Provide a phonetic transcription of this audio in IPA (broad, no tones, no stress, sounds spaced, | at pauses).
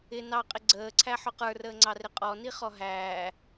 ɪ n ɑ qʼ ɪ ɡ͡ǀ əː ǀʰ æ ħ ʊ q ə˞ r əː ŋ͡ǀ ɑ r ɪ qʼ ɔ n i χ ɔ ɦ æː